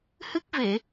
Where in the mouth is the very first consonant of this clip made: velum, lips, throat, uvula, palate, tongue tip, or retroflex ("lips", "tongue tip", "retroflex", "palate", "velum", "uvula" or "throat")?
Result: throat